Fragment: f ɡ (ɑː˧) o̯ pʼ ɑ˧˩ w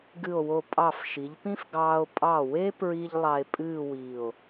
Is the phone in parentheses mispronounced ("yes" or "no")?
no